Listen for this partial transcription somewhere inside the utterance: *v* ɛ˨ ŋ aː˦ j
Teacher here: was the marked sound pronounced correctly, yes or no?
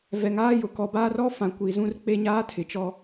yes